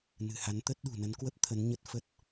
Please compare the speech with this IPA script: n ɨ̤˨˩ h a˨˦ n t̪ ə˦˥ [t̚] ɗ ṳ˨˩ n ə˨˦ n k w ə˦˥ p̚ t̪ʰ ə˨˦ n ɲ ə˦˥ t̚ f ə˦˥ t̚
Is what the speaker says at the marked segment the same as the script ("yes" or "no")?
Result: yes